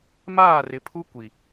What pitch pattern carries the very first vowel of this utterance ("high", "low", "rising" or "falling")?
falling